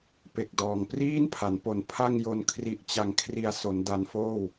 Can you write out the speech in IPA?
p e˨˩ k̚ d ɔː˨˩ ŋ p r iː˥˩ n pʰ a˩˦ n p o˨˩ n pʰ a˥˩ ŋ j o˧ n kʰ r i˨˩ ʔ t͡ɕ a˨˩ ŋ kʰ r i˨˩ a̯ s o˩˦ n d a˧ n f oː˥˩ w

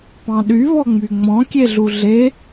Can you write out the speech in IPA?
p ɑ̃ ɗ y β ɔ ŋ͡m y ŋ͡m ɔ̃ kʲ e ɮ u ɮ e

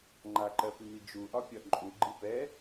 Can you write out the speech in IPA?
ŋ͡ǃ a ǃ ɜ p y m i d͡ʒ u ʔ ɒ pʲ ɒ ǃʼ u ɡ͡ǃ i p ɛ

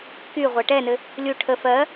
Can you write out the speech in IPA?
k y ʁʷ ɜ ʈ ɛ n ɘ | lʲ u ʈʰ ə f ɜ

